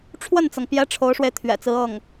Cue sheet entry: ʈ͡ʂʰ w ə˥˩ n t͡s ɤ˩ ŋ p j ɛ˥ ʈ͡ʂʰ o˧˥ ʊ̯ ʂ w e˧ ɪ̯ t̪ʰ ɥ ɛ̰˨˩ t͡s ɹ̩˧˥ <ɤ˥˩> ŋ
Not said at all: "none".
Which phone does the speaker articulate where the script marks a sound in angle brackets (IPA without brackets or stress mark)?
ɤ˥˩